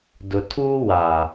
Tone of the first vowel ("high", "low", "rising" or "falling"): low